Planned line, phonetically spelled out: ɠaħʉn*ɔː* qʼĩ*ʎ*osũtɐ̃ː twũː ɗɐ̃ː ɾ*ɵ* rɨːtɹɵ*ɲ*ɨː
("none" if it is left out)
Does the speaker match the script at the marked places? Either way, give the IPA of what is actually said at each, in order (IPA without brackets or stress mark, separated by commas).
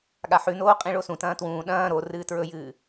oː, ɭ, o, j